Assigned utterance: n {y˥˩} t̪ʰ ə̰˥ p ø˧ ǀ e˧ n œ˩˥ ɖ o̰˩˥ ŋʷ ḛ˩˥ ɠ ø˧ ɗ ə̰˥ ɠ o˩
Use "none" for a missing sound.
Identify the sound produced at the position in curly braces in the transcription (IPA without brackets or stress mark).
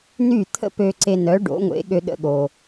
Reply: y˥˩